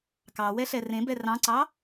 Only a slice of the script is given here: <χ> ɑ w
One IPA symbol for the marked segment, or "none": k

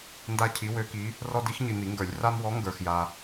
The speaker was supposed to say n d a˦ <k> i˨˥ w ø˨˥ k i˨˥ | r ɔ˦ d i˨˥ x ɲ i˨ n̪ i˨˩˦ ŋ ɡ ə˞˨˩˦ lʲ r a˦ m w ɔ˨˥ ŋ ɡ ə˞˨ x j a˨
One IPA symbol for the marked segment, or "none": cʰ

